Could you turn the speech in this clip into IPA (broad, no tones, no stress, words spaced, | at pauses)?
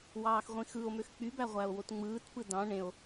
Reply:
wɑːxʁʷĩxɯo̯møx k͡pybæʁʷæo̯wot ŋ͡mɯːtpɯ dɑ̃ ɳẽo̯